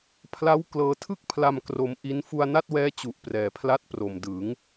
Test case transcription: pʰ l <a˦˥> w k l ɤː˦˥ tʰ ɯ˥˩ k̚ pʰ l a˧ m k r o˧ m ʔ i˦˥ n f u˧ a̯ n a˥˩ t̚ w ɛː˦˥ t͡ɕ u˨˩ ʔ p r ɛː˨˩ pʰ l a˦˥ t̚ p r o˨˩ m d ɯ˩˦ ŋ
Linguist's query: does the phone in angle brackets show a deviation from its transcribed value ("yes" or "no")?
no